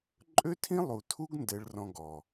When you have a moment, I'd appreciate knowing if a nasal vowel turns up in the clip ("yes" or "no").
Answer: yes